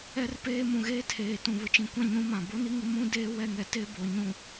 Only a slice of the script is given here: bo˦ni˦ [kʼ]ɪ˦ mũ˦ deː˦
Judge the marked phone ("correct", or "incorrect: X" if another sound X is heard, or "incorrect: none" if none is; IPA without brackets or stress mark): incorrect: ŋ